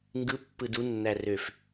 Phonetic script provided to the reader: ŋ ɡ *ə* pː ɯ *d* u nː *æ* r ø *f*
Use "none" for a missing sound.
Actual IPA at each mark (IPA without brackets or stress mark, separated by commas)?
ɯ, d, æ, f